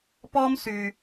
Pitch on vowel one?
high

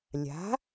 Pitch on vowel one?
rising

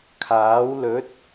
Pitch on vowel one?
rising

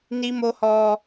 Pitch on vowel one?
high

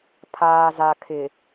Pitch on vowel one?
low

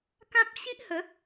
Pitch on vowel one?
high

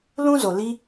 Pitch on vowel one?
high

